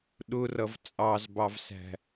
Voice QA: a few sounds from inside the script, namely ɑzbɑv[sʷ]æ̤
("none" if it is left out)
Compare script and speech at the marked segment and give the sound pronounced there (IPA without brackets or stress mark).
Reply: s